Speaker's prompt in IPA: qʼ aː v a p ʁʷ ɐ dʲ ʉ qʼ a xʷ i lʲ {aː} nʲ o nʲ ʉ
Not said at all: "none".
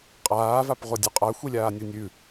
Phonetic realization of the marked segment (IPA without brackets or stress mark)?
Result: aː